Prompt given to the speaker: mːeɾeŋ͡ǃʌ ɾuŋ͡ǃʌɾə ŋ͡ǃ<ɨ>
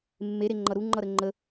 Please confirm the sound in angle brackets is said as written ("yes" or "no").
no